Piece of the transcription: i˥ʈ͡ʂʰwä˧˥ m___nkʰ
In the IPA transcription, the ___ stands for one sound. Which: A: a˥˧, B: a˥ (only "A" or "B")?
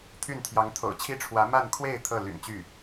A